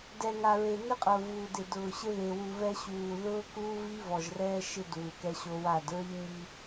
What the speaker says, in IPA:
d ɛ˨ ŋ a˨ ɹ e˨ n ɪ˦ qʼ ʊː˨ v uː˨ d ɪ˨ d ʊː˨ ɕ ɪ˦ ð e˨ w u˨ v ɛ˦ ɕ uː˨ ð ʊː˦ k uː˦ v i˦ v ɔ˨ ʒ r ɛː˦ ʃ ɪ˦ d uː˨ k ɛ˦ ɕ o˦ w a˦˨ d ɹ i˦ ɲ i˦

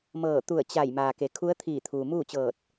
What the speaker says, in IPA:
m ɤː˧˩ t̪ u˧˩ ə̯ t͡ɕ a˧˩ j m aː˩ k e˩˧ kʰ u˧˥ ə̯ t̪ʰ iː˧˩ t̪ʰ uː˩ m uː˥˨ t͡ɕ ɤː˧˩ t̚

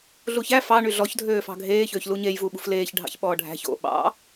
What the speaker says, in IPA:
ɮ u ç æ f ɑ ɳ y ɮ ɔ ç dʱ øː f ɑ̤ ɡʱ eː ç øː ç l u ɲ e j v u ɓ ṳ f l eː ç ɖʱ ɑ̰ ç ɓ ɔː ɖʱ æ̤ ç o̰ ɓ ɑ̰

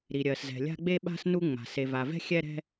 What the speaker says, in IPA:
ɾ i˩ ɾʲ ɜ˩ s z ɛ̤˩ lʲ a̤˧ ɡ͡b e˧ ɓ a̤˧ s n u˧ ŋ͡m a̤˩ s e˩ v a˩ v ɛ̤˧ xʲ ɛ˧ ɾ ɛ̤˧

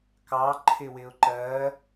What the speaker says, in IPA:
k ɑ ǃʰ ɪ w ɪ ʊ̯ ǃ ɜ

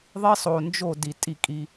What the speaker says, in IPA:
ðˤ i˦ sˤ o˨ n d͡ʒ o˦˨ d i˨ tʼ i˦˨ kʼ i˦

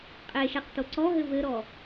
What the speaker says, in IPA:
qʼ e ʃ ɛ q t o ǀ ɔ ɦ ɘ v ɘ ɾ ɔ

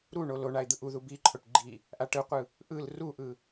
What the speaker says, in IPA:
ɾ u ɳ o l o ɳ a ɪ̯ d̪ ɯ ʔ u ð u b i ǃʰ o ʈ ɡ͡ǃ i | ʔ a ʈ ɯ qʷ ɯ | ʔ ɯ l r u ʔ ɯ

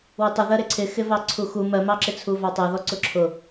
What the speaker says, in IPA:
w ɪ tˤ ɪ ð ɜ ɾ ɪ ǀʰ ɪ x ɪ v ɑ ǀʰ u x u m ɜ m ɑ ǁ ɪ t͡sʰ u v ɑ tˤ ɛ ð ɔ ǀ ʊ ǁʰ ʊ

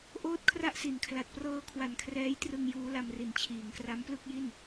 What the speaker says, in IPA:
ʔ oː˥˩ t̚ kʰ r a˥˩ ʔ s i˩˦ n kʰ l a˨˩ t̚ p r ɤː˦˥ kʰ w a˨˩ n kʰ r ɛː˦˥ j t r ɯ˧ ŋ j uː˦˥ l a˧ m r i˨˩ n t͡ɕʰ iː˩˦ ŋ k r a˦˥ m p l ɯ˥˩ k̚ j i˥˩ n

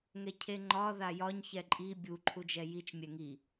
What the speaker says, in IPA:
ŋ ɛ cʰ e ŋ͡ǃ ɒ ð a j ɒ ɲ ç ɛ ǃʼ i bʲ u ǃʰ u d͡ʒ ɛ j i t͡ʃ mʲ ɛ ŋ i

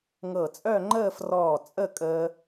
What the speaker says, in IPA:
ŋ ɤ˧˩ t͡sʼ œ˥˧ ŋ͡ǃ əː˥˧ f r ɔː˧˩ t͡sʼ ə˥˧ kʼ əː˧

